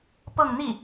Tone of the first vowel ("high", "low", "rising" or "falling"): falling